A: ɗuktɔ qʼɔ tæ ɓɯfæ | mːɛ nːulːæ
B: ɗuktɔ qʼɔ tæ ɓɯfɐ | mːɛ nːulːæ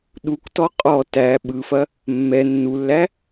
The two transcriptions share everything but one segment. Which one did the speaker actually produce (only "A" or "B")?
B